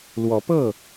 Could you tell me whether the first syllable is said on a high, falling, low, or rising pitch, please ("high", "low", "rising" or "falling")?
rising